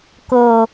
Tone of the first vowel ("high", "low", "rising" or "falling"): low